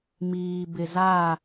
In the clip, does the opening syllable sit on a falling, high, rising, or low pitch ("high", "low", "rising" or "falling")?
low